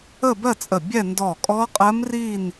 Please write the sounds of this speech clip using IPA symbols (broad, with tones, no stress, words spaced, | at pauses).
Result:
ə˥˧bɜ˥˧t͡sʼə˧˩ bʲɛ˥˧ ndɔ˧˩kʼɔ˦˥qʼɜ˦˥mri˥˧n